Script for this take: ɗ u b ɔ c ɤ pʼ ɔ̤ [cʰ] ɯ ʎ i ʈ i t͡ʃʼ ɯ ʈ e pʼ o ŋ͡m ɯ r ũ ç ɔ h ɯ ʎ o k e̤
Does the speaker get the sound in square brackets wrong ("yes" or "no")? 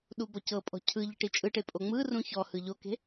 no